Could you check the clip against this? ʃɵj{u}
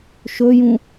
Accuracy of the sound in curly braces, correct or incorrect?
incorrect